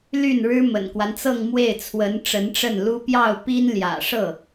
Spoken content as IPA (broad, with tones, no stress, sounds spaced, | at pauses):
l y˥˩ n ɻ ɻ̩˥ m ə̰˨˩ n k w a˦ n t͡s ɤ˥˧ ŋ m w e˥˩ ɪ̯ t͡sʰ w ə˧˥ n ʈ͡ʂ ə˧˥ n ʈ͡ʂ ə˥˩ n l u˥ p j ɑ˥˩ ʊ̯ p i˥ n l j ä̰˨˩ ʂ ɤ˥˩